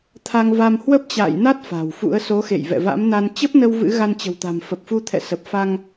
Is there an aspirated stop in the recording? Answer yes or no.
yes